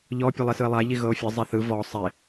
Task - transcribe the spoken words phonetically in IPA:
ʎɔ pʲɤlˠisɯe̯lˠa ʎiɣɤo̯fʲɤ zˤeθɯ vɔ sˤe

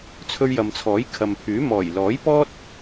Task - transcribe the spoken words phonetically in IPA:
t͡sʰɵ˧ɥjɐ˨mt͡sʰɔː˨˥j kʰɐ˨mpʰyː˨˥ mɔː˨˩jlɔː˨˥jpɔː˥t̚

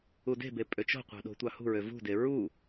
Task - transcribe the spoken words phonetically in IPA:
ude̤be pʼøt͡ʃo̤qʷɑ̤ ɗo̤tʷɑhṳɹø vṳde ɹu

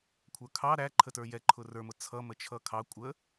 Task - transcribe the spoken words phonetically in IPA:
kʷʰə˞kʰɑ ɾæ ǃʰətə˞jɛ ǃʰʊrə˞mʊ t͡sʰʌmə t͡ʃʰʌkʰɑ kʷʼə

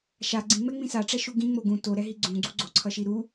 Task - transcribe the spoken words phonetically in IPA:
ʃa ɡ͡ǀĩŋ͡mɛŋ͡mĩ saʈ͡ʂɛʃu ɡĩŋ͡mo ɡũ toɾɛɦi ɡ͡ǀũɡ͡ǀu ɡ͡ǀoǀʰʌʃi ɾu

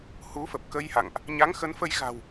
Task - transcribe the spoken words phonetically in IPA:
hu˨˦fə˨˩p̚kə˧jha̰˧˨ŋʔ | ɲa˨˦ŋxə˨˦nfə˧j ɣa̤˨˩w

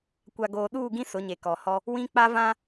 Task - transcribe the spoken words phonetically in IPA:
kʷa˨ɡoː˨ɗuː˦˨ɡĩ˦ sʊ˨˦ɲe˨kɔ˨hɔ˦ | wĩ˦k͡pa˦ vã˦

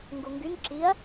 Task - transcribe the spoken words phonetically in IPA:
ŋɡuŋɡyŋ ǁiɐ̯

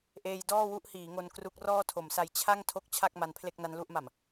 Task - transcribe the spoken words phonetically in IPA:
ʔeː˧j dɔː˥˩wu˥˩ʔhiː˩˦ŋo˧n kru˦˥k̚ rɔː˥˩tʰo˩˦msa˧j t͡ɕʰa˥˩ŋ tʰo˥˩k̚t͡ɕʰa˥˩k̚ ma˦˥n pʰle˥˩k̚na˦˥nlu˥˩ʔma˨˩m

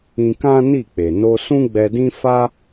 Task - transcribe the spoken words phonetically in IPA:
ĩ˧kã˦ni˦˨k͡pe˨ no˧sũ˦ɡ͡bɛ˧dĩ˦ fa˦

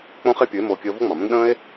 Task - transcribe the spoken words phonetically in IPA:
k͡põ˦χe˦ pʲɯ˨˦e̯moː˧ kʲəː˧vo˦ŋ͡mɑ̃˨mə̃˦n ɗə̃ː˦e̯

